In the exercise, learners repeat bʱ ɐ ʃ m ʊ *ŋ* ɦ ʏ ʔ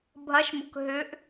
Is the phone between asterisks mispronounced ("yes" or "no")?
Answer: yes